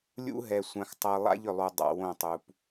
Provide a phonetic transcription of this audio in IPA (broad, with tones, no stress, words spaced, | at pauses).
lʲṵ˦ɦɛ˨ sʷã˦xtˤɤ˦ lˠa̰˦ʎʏ˨lˠu˨ dˤa̰˨ wõ˦˨tˤu˨p